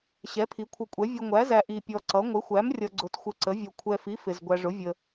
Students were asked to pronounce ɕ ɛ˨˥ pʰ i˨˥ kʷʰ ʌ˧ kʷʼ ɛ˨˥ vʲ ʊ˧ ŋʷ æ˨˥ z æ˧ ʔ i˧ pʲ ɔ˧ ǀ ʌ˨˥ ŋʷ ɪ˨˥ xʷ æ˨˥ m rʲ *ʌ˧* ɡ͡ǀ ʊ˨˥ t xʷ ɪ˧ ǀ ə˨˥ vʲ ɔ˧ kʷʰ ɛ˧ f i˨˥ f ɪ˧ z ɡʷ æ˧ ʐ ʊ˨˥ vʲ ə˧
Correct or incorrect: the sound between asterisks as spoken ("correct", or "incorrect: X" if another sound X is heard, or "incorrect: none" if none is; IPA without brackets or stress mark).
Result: correct